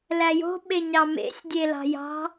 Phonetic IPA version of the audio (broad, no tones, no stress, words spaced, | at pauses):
læjo̤ ɓeɲɑmḛsʲ dʲelɑ̤jɑ̤